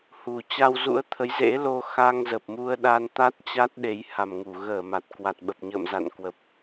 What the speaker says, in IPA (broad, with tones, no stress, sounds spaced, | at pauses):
h u˨˩ t͡ɕ a˧ w z ṵ˧˥ ə̯ t̪ʰ ə˨˦ j z ḛ˧˥ l o˧ x a˧ ŋ z ə˨˩ p̚ m u˧ ə̯ ɗ a˧ n t̪ a˦˥ t̚ t͡ɕ a˦˥ t̚ ɗ e˨˦ j h a˨˩ m ŋ u˧˩ ɣ əː˧˩ m a˨˩ t̚ k w a˨˩ t̚ ɓ ə˨˩ p̚ ɲ ə̰ː˧˨ m z a̰˧˨ n k w ə˨˩ p̚